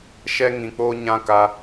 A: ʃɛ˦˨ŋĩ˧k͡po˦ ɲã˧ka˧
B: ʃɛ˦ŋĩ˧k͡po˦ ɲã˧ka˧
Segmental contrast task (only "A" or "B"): B